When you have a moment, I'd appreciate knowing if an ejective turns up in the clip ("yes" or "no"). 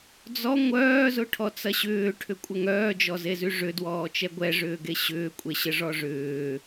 yes